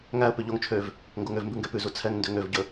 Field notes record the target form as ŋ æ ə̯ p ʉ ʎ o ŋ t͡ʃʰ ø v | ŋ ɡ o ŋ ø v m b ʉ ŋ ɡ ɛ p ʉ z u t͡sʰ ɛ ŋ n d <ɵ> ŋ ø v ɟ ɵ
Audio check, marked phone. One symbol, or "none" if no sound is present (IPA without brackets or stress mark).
ø